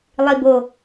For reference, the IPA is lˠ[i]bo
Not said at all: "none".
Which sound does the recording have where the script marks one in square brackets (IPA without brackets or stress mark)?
i